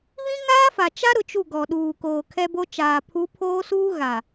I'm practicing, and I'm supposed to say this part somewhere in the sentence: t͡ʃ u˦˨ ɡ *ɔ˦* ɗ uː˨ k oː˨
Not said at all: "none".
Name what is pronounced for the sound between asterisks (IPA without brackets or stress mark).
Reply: ɔ˨